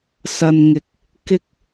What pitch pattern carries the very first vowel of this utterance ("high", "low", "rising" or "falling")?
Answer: low